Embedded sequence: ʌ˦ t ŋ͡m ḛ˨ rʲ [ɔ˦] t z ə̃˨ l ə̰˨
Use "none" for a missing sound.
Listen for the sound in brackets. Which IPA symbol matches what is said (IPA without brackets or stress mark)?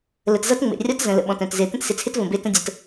ɔ˦